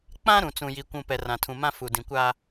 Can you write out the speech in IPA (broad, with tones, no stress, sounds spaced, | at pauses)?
k͡p ã˦ ɾ ũ˨ t͡s ũ˨ j i˨ kʷ ũ˨ p ɛ˨ r ã˨ tʰ ũ˨ m ã˦ f u˨ d ĩ˨ kʷ aː˦